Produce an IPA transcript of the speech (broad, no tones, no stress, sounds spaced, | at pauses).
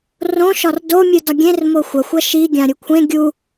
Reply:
r õ ʃ ɒ r d o mʲ ɯ d ɒ ɡʲ ẽ r m o xʷ ɐ xʷ ɐ ʃ i ɡʲ ã ɾʲ u kʷʰ ẽ ɡʲ u